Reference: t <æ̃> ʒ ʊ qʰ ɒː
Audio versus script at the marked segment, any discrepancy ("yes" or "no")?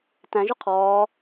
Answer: no